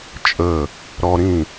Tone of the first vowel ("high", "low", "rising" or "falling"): falling